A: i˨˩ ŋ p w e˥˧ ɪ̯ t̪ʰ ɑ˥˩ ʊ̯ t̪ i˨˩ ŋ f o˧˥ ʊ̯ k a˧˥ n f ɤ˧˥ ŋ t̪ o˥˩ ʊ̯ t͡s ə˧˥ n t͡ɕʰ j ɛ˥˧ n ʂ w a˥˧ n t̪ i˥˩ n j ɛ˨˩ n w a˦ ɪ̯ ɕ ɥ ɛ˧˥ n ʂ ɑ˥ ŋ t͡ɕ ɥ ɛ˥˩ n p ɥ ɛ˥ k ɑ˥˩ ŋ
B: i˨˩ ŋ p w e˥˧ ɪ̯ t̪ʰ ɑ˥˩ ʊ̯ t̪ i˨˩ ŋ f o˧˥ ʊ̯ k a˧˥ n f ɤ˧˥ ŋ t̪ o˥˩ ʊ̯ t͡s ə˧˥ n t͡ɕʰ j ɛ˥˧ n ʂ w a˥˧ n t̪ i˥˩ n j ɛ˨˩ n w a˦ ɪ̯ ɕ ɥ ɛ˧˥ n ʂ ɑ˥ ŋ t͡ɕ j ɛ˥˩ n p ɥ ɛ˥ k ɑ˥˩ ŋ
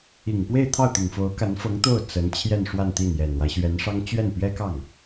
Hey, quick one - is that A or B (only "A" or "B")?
A